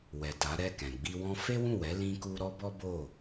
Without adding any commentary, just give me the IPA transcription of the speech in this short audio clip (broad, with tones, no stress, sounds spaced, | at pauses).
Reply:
w ɛ˨ t a˨˦ ɾ ɛ˦˨ k ɛ̃˨ ɡ͡b i˧ w ɔ̃˦ f e˦ w ũ˦˨ w ɛ˨˦ l ĩ˧ k u˧ ɾ ɔ˦ b ɔ˦ b o˦˨